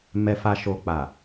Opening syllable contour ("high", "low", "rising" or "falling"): low